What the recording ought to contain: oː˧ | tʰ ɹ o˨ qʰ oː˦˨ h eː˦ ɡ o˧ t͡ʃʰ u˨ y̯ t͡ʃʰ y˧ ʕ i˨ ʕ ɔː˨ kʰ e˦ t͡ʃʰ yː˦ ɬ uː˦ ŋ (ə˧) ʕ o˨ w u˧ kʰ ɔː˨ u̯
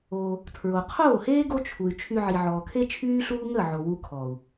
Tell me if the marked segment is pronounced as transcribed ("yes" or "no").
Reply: no